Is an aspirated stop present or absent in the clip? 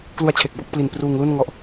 present